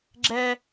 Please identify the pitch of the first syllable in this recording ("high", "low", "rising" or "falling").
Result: high